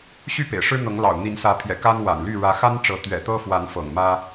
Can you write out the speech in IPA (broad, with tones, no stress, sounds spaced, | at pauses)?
ɕ y˥˨ p ḛ˨˩ ɪ̯ ʂ ɻ̩˦ n̪ ɤ˨˦ ŋ l ɑ̰˨˩ ʊ̯ n̪ i˨˦ n s ä˨˦ pʰ j ɛ̰˨˩ k a˦ n w a̰˨˩ n l y˥˨ ɻ ä˨˦ x a˦ n ʈ͡ʂ ɤ˨˦ t̪ ɥ ɛ̰˨˩ t̪ ɤ˦ f w a˨˦ n f ɤ̰˨˩ ŋ m ä˦